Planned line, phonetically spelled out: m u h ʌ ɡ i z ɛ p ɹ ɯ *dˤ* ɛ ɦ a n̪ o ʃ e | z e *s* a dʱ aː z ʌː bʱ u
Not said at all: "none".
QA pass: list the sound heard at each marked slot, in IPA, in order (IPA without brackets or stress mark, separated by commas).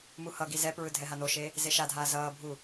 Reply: dʱ, ʃ